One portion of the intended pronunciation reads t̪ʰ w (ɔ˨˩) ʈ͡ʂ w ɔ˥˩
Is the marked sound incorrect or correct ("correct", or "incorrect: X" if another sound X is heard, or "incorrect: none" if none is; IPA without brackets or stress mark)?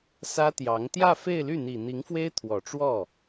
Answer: correct